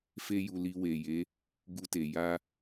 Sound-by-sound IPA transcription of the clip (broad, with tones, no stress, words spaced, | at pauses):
fe˦ju˧li˧ we˨je˨˦ | ɡu˧te˨ ja˧